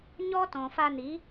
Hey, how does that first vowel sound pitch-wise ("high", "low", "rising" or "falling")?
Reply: high